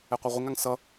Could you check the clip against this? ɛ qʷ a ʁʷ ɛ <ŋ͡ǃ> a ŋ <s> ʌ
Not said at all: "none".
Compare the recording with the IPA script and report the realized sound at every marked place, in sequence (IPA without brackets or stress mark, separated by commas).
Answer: ŋ, s